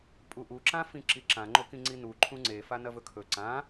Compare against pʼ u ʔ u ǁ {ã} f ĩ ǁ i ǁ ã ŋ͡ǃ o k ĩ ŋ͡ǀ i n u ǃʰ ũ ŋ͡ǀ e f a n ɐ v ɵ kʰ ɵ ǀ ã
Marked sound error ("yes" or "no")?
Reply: no